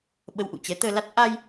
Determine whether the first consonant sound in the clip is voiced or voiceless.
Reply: voiced